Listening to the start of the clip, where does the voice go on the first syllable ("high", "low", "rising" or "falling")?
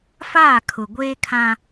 falling